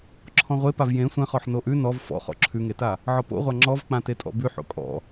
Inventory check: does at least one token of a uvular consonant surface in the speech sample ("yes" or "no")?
yes